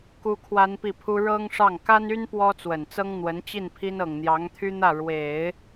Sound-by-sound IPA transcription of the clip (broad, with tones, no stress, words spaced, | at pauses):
ku˥kʰwa˥npi˥˩pʰu˥ ɻɤ˥ŋʂɑ˥˩ŋ ka˥ny˥n pwɔ˥t͡swə˨˩nt͡sɤ˥ŋ n̪wə˧˥nt͡ɕi˥˩npʰi˥n ɤ˨˩ŋn̪jɑ˧˥ŋt̪ʰy˥n̪ä˥˩ ɻwe˨˩˦ɪ̯